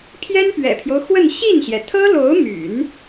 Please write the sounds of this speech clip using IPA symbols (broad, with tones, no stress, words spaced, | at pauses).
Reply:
pʰjɛ˥npɥɛ̰˨˩pʰjo˦ʊ̯xwə˥˧n ɕi˥˩nɕjɛ˩ t̪ʰɤ˥lo˧˥ʊ̯my̰˨˩˦n